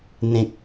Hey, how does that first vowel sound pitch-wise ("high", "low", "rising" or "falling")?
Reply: low